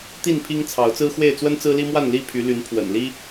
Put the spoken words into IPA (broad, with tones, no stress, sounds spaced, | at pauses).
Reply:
t̪ i˥˨ n pʰ i˦ ŋ t͡sʰ ɑ˨˦ ʊ̯ t͡s ɹ̩˦ x w e˥˨ ɪ̯ t͡s w ə˦ n t͡s ɹ̩˦ l i˦ m w a˥˨ n l i˥˨ pʰ y˨˦ l y˨˦ n pʰ w ə̰˨˩ n l i˦